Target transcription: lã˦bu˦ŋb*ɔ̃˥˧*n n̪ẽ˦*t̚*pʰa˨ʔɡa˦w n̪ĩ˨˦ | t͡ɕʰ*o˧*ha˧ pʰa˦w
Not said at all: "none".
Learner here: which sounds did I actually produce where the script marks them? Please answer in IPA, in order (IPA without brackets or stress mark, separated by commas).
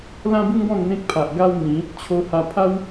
ɔ̃˥˧, k̚, o˧